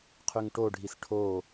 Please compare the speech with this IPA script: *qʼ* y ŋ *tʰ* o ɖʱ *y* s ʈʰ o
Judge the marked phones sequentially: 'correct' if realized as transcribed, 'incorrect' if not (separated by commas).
incorrect, incorrect, incorrect